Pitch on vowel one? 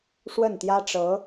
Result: falling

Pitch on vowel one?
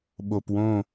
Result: low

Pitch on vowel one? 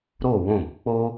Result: falling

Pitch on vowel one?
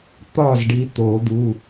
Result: falling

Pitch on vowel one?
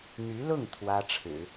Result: rising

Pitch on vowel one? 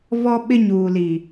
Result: high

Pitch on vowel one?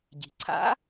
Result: low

